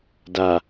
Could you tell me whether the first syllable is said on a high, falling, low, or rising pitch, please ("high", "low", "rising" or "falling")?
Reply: low